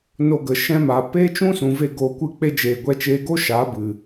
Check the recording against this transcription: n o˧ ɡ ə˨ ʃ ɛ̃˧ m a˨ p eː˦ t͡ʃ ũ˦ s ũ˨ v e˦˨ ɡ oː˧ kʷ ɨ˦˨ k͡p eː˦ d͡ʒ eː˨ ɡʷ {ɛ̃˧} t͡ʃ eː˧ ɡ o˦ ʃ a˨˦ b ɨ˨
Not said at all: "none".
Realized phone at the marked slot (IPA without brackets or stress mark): ɛ˧